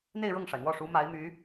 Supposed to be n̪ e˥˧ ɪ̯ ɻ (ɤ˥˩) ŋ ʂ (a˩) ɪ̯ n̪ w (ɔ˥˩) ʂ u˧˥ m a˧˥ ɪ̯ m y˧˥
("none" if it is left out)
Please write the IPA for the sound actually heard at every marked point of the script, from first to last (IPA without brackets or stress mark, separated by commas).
ɤ˥˩, a˩, ɔ˥˩